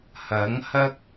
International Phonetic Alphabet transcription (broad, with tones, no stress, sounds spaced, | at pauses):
h ɐ˨˥ ŋ h ɐ˥ k̚